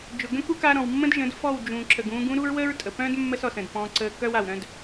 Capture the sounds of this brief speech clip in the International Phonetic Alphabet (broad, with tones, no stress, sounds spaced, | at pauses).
d͡ʒ ʊ˨ ɡ ə̃˦ k u˦ k a˧ ɾ ɔ̃˨ w mː ə̃˦ d ʒ ə̃˨˦ d f ɔ˦˨ w d͡ʒ ũ˨ ǁ ə˨ ɡ ũː˧ ɡ ũ˦ ɾ u˦ ɹ w ə˦ ɹ tʼ ə˨ p œ̃˦ d mː ə˦ s ɔ˨ s ə̃˨ d p ɔ̃˧ ǀ əː˧ k œ˦ w a˨ w ɾ œ̃˧ d